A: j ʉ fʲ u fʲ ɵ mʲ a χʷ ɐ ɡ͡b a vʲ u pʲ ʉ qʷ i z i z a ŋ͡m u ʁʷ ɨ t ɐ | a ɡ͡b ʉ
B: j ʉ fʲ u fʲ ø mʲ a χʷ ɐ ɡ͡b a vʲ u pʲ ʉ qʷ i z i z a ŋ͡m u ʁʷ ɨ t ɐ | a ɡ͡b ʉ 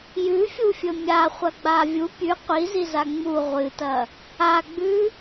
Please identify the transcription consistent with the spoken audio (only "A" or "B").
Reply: A